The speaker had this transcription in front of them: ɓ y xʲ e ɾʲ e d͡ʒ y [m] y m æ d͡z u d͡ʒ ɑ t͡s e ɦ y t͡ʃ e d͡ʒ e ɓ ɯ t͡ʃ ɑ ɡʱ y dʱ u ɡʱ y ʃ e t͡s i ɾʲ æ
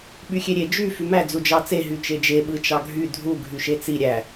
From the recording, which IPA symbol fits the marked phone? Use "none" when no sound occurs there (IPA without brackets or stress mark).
f